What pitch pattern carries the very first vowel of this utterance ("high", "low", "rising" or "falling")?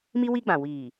high